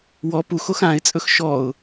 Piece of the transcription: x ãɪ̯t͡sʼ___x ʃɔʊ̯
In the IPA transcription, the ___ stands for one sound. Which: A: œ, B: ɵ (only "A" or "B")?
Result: B